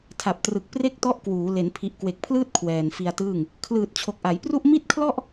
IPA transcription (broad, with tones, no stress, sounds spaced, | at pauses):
tʰ a˨˩ p̚ t r ɯ˨˩ k̚ p r e˥˩ k̚ t ɔ˦˥ ʔ k w uː˩˦ l e˩˦ n pʰ i˨˩ ʔ k w e˨˩ k̚ pʰ l ɯː˥˩ t̚ kʰ w ɛː˨˩ n f i˧ a̯ t ɯː˥˩ ŋ | kʰ l ɯː˨˩ t̚ t͡ɕʰ o˨˩ k̚ ʔ a˩˦ j p r u˥˩ ʔ m i˥˩ t̚ kʰ l ɔ˥˩ ʔ